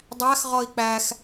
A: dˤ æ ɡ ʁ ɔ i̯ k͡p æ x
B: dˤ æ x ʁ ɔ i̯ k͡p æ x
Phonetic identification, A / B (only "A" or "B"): B